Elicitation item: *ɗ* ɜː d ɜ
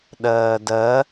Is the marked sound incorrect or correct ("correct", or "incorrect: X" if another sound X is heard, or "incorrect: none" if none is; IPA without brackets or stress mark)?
correct